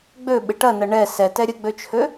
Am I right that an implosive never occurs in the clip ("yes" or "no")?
no